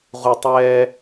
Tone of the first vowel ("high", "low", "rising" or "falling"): low